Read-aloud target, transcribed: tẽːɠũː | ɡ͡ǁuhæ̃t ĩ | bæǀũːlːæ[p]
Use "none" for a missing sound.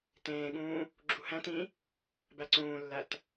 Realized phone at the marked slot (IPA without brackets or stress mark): t